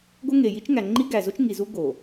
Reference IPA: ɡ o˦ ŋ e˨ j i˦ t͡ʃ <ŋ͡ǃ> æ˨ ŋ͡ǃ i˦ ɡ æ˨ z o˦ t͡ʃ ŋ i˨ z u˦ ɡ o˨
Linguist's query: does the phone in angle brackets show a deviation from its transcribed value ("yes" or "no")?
yes